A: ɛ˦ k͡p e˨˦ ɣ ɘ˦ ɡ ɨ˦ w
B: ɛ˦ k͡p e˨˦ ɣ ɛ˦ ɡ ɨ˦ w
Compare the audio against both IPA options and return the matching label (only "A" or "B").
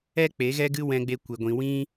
B